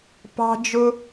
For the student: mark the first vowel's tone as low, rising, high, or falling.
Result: high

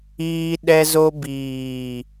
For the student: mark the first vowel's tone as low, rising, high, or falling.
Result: high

